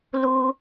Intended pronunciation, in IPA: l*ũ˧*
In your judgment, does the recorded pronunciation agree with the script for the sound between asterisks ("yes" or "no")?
no